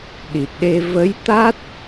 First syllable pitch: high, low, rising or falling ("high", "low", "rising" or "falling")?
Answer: low